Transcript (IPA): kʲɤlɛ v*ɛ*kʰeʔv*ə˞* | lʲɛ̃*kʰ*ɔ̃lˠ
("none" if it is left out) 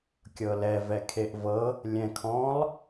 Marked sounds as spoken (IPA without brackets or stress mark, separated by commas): ɛ, ɤ, kʰ